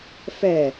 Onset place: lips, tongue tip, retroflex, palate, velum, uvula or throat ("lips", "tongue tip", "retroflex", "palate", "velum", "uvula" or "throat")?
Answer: lips